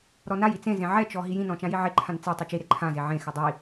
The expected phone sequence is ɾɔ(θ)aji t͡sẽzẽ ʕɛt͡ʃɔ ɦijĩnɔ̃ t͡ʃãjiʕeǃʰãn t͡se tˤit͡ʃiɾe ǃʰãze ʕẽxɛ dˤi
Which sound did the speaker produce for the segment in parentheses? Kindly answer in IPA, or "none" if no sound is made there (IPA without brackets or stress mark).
n